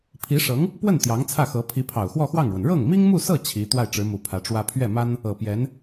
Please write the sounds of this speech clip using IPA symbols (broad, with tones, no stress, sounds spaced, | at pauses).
pʰ i˧˥ ʂ ɤ˧˥ ŋ | p w ə˥˩ n t̪ j ɑ˧˥ ŋ t͡sʰ ä˥˩ x ɤ˧˥ pʰ i˧˥ pʰ ɑ˨˩ ʊ̯ x w ɔ˥˧ x w ɑ˥˩ ŋ ɻ w ə˩ n ɻ ɤ˥˩ ŋ m i˥ ŋ m u˥˧ s ɤ˥˩ t͡ɕʰ i˧˥ t̪ w a˥˩ ɪ̯ ʈ͡ʂ ɻ̩˧˥ m u˨˩ pʰ ä˧˥ ʈ͡ʂ w ä˥ pʰ ɥ ɛ˥˩ m a˥ n | ɤ˨˩ p j ɛ˧˥ n